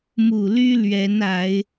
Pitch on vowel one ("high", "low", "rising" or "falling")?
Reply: low